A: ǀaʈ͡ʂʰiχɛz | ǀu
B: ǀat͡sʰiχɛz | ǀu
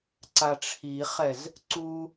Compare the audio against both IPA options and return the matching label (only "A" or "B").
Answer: A